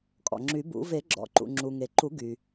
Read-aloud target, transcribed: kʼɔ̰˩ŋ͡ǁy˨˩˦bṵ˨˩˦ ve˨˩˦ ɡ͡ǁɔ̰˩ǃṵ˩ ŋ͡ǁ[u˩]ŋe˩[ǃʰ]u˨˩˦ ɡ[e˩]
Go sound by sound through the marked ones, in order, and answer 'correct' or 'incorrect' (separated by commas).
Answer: correct, incorrect, incorrect